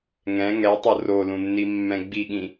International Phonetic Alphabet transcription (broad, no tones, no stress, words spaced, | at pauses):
ŋɛ̃ ŋɛtˤo rolũnːimːɛ̃ ɡ͡biɠĩ